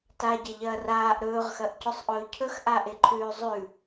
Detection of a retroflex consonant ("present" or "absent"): absent